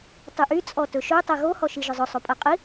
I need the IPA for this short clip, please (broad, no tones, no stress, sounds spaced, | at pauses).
tˤ y ʔ y t͡sʼ ɔ t ɵ ʃ ɵ tˤ ɛ ɣ o h ɔ ʃ i ʒ ʊ zˤ ʊ sˤ o pʼ ɜ qʼ i